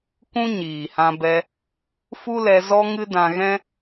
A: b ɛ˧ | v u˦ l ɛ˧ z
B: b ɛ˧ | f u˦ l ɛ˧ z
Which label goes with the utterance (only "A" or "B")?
B